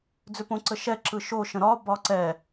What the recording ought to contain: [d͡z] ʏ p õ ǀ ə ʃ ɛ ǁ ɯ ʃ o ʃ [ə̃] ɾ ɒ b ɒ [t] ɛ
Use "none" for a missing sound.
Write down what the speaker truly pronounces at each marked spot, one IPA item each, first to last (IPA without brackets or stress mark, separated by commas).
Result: d͡z, ə̃, ǀ